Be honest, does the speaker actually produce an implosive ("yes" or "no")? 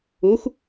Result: no